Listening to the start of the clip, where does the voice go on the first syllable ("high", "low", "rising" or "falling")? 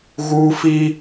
high